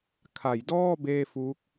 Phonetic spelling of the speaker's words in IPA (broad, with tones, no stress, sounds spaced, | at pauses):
kʰ a˩˦ j d ɔː˥˩ b eː˥˩ f u˦˥ k̚